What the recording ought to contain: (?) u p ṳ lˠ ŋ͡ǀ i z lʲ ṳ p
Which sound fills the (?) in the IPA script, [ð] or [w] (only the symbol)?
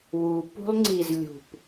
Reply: w